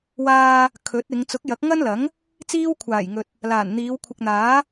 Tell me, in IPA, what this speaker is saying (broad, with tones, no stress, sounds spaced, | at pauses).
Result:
w aː˧ | kʰ ɵ˨˥ t̚ ɪ˨˧ ŋ t͡s ʊ˨˥ k̚ j ɐ˨˥ k̚ ŋ ɐ˥ n l ɐ˨˥ ŋ | t͡s iː˥ w kʷʰ aː˨˩ j ŋ ɵ˨ t̚ | l aː˨˩ n n̪ iː˨˧ w kʷʰ ɪ˨ k̚ n̪ aː˨˥